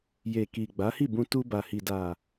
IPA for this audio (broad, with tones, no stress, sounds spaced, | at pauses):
j e˨ k i˨ ɡ͡b a˨˦ h i˦˨ b ũ˧ t u˧ b a˨ h i˨ d a˨